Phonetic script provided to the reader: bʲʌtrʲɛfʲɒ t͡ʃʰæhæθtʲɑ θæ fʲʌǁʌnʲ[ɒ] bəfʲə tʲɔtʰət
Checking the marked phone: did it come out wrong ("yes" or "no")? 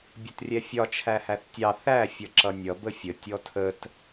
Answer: yes